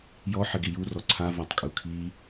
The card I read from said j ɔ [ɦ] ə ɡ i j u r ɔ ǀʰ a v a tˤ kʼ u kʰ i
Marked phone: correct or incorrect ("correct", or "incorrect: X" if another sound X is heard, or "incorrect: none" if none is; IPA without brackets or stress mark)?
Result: incorrect: ħ